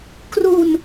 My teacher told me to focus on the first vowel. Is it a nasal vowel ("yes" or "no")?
no